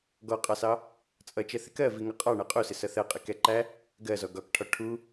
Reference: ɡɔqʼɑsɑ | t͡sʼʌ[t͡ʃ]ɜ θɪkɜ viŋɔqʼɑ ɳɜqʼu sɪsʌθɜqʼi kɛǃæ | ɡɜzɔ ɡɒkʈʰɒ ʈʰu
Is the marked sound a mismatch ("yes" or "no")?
no